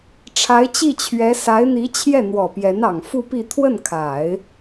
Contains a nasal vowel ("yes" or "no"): no